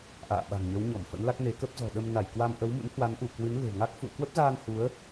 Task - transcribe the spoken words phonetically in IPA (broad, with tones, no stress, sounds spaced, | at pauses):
ʔ a̰ː˧˨ ɓ a̤˨˩ ŋ ɲ ə˨˦ w ɲ ɔ˧˩ m f ə̰˧˥ n l a˦˥ k̚ n e˨˦ k ə˦˥ p̚ z ɔ̤˨˩ ɗ ə˧ m n a˧˩ j k w a˧ m ʔ ə˨˦ w m ṵ˧˥ n h w a˨˦ n ʔ u˧˩ k w ɨ˨˦ n l e̤˨˩ ŋ a˦˥ k̚ f ṵ˧˨ ə̯ k w ə˦˥ p̚ z aː˧ n h u˨˦ ə̯